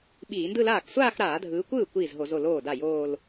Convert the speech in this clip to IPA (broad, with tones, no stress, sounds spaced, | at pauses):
ɓ iː˧˩˧ n d ɯ˥˧ l aː˥˩ k sʷ aː˥˧ x ɾ aː˧˩˧ dʱ ɯː˨˦ kʷ ɯː˥˩ kʷ iː˥˩ z ɦ o˧˩˧ z o˥˩ l oː˥˩ d a˥˩ j oː˥˧ l